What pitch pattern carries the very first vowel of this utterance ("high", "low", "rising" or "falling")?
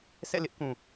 falling